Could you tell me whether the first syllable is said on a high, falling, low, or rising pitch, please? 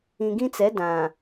low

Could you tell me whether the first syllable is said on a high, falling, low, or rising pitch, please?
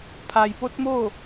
low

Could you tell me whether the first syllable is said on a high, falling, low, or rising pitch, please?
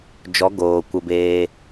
rising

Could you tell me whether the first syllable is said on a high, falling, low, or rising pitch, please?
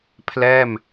falling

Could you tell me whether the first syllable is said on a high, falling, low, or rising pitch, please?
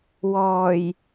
low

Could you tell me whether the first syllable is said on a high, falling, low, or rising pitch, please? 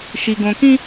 low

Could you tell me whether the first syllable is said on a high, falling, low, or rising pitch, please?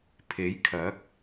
rising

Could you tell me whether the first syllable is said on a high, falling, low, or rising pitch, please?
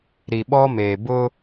low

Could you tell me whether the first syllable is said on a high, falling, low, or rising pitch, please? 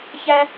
high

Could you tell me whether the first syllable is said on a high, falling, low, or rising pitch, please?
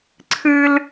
high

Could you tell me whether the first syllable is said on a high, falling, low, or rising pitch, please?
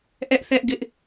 high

